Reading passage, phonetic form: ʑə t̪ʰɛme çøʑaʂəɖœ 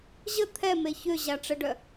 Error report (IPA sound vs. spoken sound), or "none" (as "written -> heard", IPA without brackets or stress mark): ʂ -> ʈ͡ʂ